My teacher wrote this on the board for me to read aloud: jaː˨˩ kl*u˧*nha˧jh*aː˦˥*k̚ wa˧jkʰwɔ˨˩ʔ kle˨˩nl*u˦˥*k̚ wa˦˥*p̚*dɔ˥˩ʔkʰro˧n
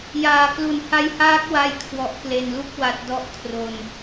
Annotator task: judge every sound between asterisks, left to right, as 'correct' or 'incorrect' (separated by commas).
incorrect, correct, correct, incorrect